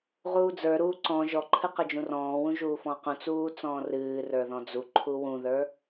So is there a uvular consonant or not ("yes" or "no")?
yes